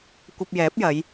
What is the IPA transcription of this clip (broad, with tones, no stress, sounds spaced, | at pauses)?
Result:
kʷ ɐ˧ p̚ j ɛː˨˥ p̚ j ɐ˨˧ j